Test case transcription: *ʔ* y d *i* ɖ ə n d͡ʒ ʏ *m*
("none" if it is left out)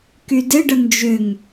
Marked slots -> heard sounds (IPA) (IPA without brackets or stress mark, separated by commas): k, ɪ, ŋ